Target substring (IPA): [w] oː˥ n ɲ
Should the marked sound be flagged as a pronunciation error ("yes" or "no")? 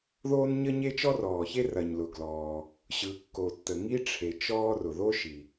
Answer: yes